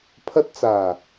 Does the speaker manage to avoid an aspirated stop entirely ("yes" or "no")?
no